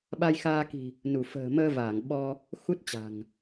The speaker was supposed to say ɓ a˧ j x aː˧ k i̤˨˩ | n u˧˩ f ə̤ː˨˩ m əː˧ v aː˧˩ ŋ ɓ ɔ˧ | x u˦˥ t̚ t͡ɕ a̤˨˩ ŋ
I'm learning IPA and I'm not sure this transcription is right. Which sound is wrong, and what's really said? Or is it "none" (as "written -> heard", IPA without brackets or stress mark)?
none